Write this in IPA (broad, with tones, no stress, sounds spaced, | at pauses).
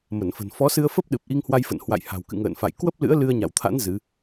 m ə˧˩ n f ə̤˨˩ n f ɔ˨˦ s ɨ˧ ə̯ f ə˦˥ p̚ ɗ ɨ˨˩ p̚ ʔ i˧ ŋ h w a˧ j f ə̰˧˨ n h w a̰˧˨ j h a̤˨˩ w k ɨ̰˧˨ ŋ ə̰ː˧˨ n f a̰˧˨ j k w ə˦˥ p̚ l ɨ̰˧˥ ə̯ l ɨ˧ ə̯ ɲ a̰˧˨ w t̪ʰ a̰˧˥ n z ɨ˨˦